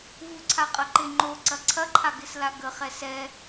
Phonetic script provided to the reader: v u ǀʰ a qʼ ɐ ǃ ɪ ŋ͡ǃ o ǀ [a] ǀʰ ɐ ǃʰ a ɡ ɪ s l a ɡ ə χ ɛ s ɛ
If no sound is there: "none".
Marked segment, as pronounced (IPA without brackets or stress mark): ɐ